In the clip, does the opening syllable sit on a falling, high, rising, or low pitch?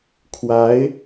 rising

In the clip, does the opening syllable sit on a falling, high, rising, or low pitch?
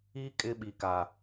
high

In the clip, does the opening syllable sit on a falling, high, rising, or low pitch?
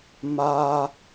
high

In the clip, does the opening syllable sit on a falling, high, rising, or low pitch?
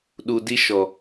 low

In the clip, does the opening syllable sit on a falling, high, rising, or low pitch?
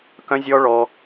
high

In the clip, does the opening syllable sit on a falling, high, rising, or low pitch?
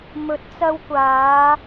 rising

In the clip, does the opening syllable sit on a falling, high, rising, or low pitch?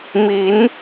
rising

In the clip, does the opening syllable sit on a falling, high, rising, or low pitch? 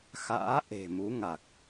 rising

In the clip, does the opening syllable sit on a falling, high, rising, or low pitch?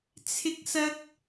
high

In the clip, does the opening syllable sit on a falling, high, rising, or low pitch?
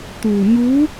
low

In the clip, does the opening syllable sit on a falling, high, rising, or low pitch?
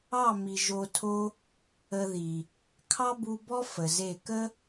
falling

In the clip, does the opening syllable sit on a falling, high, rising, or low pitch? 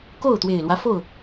falling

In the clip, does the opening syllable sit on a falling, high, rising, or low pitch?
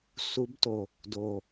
rising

